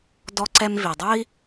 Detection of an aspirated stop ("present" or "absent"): absent